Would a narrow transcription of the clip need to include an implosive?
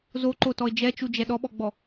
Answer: yes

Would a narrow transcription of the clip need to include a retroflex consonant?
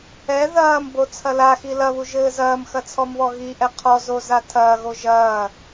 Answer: no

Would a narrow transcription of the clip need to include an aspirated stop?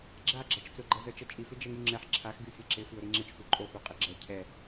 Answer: yes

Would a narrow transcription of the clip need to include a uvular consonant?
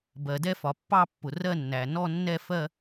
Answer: no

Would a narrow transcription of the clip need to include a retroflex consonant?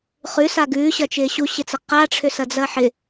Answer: yes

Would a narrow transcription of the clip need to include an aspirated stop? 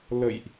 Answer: no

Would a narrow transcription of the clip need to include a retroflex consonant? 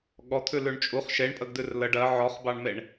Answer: yes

